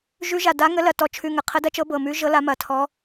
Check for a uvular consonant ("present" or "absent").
present